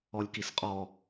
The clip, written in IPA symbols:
ɔ lʲ k i s qʼ ɔ

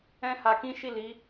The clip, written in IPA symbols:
ɛ̃˦ h a˧ k ĩ˦ ʃ i˦˨ l i˨˦

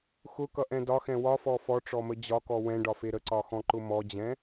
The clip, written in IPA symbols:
x ʊ k ʌ ʔ ɛ̃ d ɒ x ɛ̃ w ɒ f ɔ f ɔ ʈ͡ʂ ɔ m ə d͡ʑ ɒ k ɔ w ɛ̃ ɖ ɒ f e ɾ ə ǀ ɒ x ɔ̃ ǃ ʊ m ɔ d͡ʑ ɛ̃

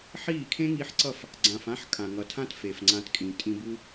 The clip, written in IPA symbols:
ħ iː˦˨ kʰ ẽ˦ ŋ i˧ ħ ǀ ʌ˦˨ f | ɡ͡ǀ ã˨ f ã˦ ħ kʼ ã˨ ŋ ʌ˨ tʰ ã˦ t f e˨ f ŋ͡ǀ ã˧ t kʼ ĩ˨ tʼ ĩ˧ b u˦

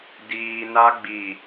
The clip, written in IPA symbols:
d iː˨ n a˦ ɡ͡b i˨

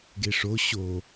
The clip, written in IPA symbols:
ɡ e ʂ o ɕ o

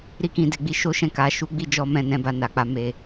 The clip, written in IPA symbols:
ɾ i˦ k ĩ˦˨ d e˧ ɡ͡b i˦ ʃ o˦ ʃ ɛ̃˦˨ k a˨˦ ʃ u˦ ɡ͡b i˦ d͡ʒ ɔ˦ m ɛ̃˦˨ n ɛ̃˧ b a˧ n a˨ k͡p a˨˦ m e˧

